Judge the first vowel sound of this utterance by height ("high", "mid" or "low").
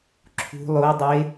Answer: high